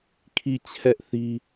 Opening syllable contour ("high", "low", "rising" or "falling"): falling